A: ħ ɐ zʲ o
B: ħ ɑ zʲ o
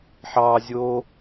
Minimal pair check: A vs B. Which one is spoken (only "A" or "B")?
B